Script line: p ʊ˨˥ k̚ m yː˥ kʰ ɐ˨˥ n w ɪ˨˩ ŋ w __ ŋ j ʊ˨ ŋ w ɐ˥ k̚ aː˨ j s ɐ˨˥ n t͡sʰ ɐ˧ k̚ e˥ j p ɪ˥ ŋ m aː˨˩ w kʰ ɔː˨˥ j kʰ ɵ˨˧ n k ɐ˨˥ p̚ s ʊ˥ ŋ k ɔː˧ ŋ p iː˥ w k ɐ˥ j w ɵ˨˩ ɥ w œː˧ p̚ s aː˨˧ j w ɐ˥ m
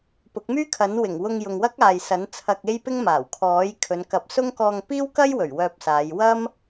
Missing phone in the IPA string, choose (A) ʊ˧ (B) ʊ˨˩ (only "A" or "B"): A